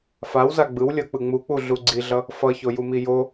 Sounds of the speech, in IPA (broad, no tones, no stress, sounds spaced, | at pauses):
f a w z a ɡ͡b ɯ w lʲ ʌ k͡p ɯ ŋ͡m u k͡p u ɮ u ɡ͡ǀ i ɮ ʌ | f ʌ ç o j u m i j o